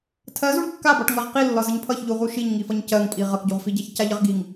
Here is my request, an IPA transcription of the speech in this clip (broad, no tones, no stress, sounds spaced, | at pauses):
tʰ ɜ z u ɳ kː a b ɒ ʈ ŋ ɜ ʁ q i lː ɒ z ə ɲ pʰ ʌ ç ʎ u ʁ u ʃ i ɲ ŋ i f ʌ ɲ c ɜ ŋ pʼ i ʁ ʌ k ɟ u ʁ f i ɟ a ç c a ʎ ə ʁ ɡ i ŋ